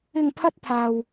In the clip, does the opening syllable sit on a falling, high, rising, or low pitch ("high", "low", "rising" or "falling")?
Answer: low